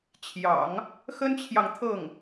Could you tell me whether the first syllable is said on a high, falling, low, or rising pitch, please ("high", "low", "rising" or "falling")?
low